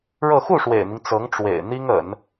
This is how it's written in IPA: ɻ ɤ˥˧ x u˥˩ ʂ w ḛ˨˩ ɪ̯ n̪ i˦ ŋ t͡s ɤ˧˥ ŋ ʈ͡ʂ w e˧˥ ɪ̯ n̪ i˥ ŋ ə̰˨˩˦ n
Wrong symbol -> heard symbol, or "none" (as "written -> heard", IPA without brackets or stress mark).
e˧˥ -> ḛ˨˩